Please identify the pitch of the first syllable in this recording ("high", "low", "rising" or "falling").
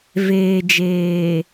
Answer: low